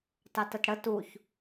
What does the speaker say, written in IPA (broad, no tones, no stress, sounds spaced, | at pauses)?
t ɑ t ə t ɽ ə t u ç